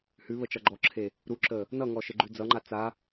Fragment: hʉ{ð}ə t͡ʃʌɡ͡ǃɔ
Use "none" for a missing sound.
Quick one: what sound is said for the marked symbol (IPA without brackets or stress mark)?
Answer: β